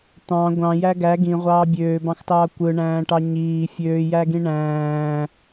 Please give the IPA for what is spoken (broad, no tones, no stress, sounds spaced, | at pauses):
t̪ ɑ̃ ɡʷ ɑ̃ j æ ɡ æ ɡ ĩ ʁʷ ɑː bʲ øː b ɑ̃ x t ɑː kʷ ɯ ɳ æ̃ː ʈ ɑ ɲ iː fʲ øː j æ ɡ ĩ ɳ æ̃ː